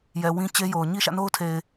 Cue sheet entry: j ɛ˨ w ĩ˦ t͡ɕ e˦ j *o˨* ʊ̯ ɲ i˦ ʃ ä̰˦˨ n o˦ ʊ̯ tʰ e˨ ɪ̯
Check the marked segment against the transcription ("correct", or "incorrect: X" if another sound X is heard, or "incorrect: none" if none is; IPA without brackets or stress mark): correct